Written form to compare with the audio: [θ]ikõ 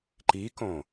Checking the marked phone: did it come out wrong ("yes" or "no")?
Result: yes